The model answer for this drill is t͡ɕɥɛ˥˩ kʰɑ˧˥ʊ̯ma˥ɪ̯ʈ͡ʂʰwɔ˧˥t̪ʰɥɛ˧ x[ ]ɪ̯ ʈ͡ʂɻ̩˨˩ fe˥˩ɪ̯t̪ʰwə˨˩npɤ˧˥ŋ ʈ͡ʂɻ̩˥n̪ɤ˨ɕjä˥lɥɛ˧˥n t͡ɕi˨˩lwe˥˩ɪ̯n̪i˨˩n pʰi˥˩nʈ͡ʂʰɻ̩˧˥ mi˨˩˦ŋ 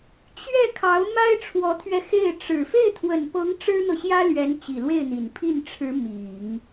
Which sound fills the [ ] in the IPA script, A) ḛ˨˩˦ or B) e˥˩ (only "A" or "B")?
B